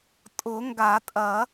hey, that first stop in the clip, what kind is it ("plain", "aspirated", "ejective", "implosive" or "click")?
ejective